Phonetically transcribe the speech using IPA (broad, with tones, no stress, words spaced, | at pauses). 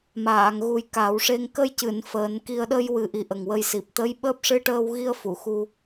maː˨˩˨ŋɣu˨˩j ka˨˩˦wʂe˧ŋ kə˧jcɨ˨˩˨n fəː˨˩˦nki˧ə̯ ɗə˧jwɨ˨˩ʔi˨˩ ʔə˨˩ŋwə˧jsi˨˩p̚ t̪ə˧˥j ɓəː˦˥p̚ ʂɨ˧ʈəː˧wɣi˧ə̯ fu˨˩˨xu˧